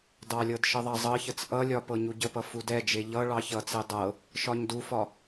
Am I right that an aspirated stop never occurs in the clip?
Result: yes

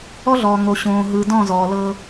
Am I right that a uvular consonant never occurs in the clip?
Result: yes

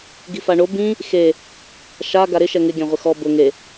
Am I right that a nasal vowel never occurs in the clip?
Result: no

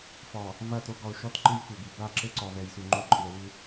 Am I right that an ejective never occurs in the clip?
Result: no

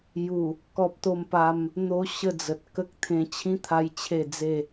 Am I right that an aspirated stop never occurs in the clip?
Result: no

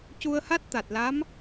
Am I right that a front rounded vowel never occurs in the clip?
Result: yes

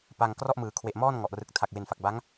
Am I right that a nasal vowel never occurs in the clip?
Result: yes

